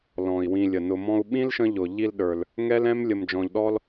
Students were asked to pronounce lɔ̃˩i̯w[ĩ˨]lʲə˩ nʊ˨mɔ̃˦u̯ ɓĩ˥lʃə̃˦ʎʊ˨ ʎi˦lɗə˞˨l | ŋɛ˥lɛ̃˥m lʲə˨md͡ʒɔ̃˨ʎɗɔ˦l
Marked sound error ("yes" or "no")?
no